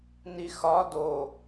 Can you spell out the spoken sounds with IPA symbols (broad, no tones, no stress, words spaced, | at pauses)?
nixɒ do